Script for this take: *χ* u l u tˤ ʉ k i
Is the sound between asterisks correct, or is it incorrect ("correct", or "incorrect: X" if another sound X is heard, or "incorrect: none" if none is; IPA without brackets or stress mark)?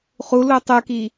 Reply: correct